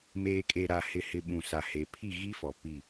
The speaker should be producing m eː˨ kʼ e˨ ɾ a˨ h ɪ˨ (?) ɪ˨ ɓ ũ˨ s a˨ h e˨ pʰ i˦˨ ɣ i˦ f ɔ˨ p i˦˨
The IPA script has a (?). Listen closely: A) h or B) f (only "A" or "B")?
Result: A